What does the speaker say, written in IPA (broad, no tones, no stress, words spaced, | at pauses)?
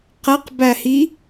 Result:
qæqbæhi